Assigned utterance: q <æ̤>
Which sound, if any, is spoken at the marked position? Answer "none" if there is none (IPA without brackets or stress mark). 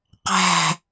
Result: æ̤